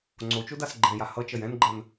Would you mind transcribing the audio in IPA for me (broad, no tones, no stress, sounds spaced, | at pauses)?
ŋ͡ǀ o t͡ʃ o d a s ɡ͡ǃ ɛ̃ j a h ʌ t͡ʃ ʌ j ɛ̃ n ɡ͡ǃ ɜ n